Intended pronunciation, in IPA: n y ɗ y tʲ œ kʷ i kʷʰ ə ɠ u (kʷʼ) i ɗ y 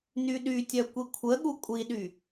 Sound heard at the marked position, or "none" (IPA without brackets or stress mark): kʷʼ